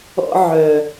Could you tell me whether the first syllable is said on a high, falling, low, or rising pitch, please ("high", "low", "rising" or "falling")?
high